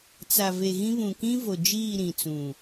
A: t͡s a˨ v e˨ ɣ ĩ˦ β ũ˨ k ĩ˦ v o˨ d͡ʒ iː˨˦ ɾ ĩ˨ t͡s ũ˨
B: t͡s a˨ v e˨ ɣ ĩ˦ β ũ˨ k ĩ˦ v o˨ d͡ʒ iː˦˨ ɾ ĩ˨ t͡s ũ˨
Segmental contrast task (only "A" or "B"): B